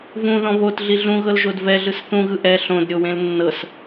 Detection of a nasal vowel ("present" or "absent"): present